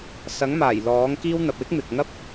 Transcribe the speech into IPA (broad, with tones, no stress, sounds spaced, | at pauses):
s ɐ˨˥ ŋ m aː˨˩ j l ɔː˨˥ ŋ k iː˥ w n̪ ɐ˨ p̚ w ɪ˥ k̚ m ɪ˨ k̚ ŋ ɐ˥ p̚